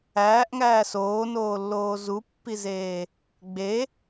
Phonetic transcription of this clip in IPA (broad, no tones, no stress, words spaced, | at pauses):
æːʔŋæː soːnoːlːoː zupːizeː | ɡ͡be